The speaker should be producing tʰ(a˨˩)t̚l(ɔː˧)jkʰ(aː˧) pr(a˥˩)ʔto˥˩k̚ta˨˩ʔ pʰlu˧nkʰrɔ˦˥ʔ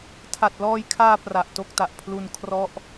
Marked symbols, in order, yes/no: yes, yes, yes, no

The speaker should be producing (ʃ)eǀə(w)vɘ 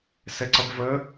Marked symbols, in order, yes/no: no, no

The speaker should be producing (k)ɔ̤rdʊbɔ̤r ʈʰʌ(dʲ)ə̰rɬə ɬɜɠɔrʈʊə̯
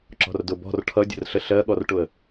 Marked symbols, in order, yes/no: no, yes

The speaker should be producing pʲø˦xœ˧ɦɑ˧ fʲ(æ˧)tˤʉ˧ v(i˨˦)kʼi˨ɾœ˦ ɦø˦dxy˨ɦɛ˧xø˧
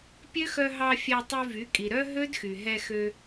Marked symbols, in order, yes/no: yes, no

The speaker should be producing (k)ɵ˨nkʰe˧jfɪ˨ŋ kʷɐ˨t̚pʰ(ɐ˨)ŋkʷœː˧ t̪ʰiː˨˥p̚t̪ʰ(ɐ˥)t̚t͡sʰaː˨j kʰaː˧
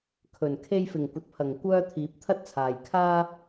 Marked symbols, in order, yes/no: no, yes, yes

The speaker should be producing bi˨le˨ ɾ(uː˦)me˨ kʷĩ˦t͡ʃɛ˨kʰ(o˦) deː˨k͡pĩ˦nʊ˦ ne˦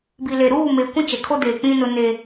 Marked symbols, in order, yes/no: no, yes

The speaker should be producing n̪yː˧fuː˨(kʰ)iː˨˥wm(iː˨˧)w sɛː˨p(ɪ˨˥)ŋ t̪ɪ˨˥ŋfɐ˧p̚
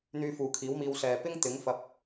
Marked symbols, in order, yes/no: yes, no, no

